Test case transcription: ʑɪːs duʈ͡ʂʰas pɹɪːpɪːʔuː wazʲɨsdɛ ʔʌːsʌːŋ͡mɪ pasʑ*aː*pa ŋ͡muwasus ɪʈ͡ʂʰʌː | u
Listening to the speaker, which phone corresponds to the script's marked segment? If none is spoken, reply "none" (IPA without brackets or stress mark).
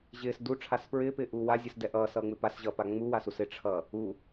ʌː